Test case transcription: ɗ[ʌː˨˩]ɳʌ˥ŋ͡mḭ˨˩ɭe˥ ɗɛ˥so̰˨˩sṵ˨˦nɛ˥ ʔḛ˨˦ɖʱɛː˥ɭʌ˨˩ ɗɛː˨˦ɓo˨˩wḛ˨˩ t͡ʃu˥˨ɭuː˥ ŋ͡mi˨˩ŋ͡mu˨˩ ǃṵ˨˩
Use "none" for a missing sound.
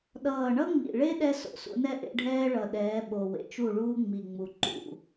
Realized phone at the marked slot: ʌː˨˩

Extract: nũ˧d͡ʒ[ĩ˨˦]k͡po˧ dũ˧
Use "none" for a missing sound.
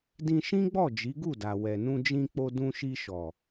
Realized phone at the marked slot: ĩ˧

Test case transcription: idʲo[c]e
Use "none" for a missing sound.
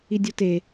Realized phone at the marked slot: t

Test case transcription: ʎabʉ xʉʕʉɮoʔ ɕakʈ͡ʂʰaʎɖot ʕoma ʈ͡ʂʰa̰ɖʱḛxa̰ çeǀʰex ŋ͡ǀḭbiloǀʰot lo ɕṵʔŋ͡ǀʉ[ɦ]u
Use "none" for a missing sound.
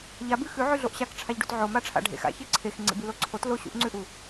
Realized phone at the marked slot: ʔ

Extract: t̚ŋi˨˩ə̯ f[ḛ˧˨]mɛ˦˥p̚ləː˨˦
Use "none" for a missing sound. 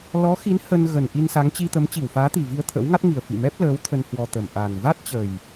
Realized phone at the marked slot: ḭ˧˨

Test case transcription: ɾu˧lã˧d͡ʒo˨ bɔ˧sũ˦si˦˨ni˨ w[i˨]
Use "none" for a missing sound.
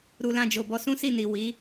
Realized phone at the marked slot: i˨˦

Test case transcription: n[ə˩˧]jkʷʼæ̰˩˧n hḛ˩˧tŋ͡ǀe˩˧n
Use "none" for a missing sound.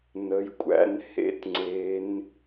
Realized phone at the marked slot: ə˩˧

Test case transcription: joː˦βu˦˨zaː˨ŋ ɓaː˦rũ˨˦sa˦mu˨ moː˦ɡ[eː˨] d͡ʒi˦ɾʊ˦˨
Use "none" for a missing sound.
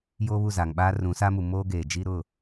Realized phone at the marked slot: eː˨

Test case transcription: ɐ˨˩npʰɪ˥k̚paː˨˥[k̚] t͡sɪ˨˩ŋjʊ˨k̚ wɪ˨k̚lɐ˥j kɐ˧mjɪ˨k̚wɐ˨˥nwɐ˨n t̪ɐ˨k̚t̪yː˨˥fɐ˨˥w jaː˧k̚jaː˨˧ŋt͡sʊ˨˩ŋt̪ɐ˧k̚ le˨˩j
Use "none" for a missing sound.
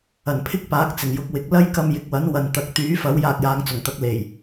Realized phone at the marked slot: k̚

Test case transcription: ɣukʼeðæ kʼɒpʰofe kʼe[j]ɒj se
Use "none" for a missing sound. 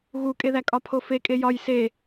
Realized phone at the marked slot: j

